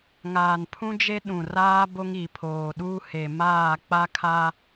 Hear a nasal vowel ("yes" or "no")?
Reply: yes